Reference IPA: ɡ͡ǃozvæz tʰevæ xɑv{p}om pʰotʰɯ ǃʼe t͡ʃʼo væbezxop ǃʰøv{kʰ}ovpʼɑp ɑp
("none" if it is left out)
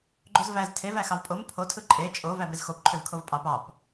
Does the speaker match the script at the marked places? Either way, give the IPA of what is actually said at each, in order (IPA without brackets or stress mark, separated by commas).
pʼ, kʰ